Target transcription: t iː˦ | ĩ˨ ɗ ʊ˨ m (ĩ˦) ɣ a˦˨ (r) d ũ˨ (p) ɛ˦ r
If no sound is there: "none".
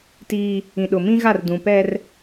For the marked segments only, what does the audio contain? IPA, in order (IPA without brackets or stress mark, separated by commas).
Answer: ĩ˦, r, p